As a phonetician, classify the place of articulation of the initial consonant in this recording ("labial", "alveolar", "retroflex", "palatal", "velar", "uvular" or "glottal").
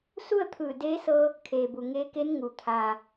alveolar